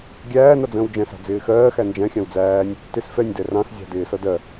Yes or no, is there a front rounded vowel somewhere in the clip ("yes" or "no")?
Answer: no